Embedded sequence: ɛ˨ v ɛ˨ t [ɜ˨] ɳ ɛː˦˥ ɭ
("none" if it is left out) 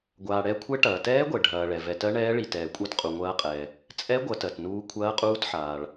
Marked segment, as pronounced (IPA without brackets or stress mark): ɜ˦˥